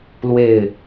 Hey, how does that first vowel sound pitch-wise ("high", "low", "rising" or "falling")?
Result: falling